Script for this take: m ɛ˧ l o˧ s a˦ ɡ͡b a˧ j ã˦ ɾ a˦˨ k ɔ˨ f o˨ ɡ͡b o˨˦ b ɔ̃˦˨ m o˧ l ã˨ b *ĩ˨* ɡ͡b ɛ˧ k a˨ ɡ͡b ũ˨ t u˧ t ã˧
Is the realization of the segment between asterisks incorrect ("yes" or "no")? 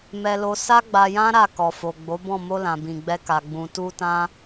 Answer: no